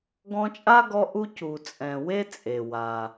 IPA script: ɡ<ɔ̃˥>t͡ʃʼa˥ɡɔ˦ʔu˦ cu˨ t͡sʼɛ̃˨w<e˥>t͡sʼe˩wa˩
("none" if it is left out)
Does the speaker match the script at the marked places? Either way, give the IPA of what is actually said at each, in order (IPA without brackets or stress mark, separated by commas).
ɔ̃˦, e˥